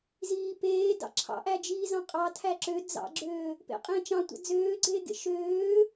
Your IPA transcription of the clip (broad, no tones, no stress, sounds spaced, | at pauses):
z iː p eː d ɑ̰ ǁʰ ɑ̰ ʔ æ d͡ʒ iː z ɑ̃ qʼ ɑ tʰ æ ǁ ø d͡z ɑ̰ ɡ͡ǁ øː | p ḛ qʼ ẽː t͡ʃ ɑ̃ tʷ ɑ̰ d͡z øː ɡ͡ǀ eː ɡ ḛ ʃ øː